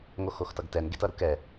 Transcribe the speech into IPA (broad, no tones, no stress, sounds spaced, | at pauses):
ŋ o x o x t ʌ ɡ t ɛ n ɡ e t ʌ ɾ u k ɛ